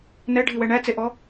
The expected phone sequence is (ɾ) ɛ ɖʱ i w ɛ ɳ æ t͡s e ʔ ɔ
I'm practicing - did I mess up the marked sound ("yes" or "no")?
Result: yes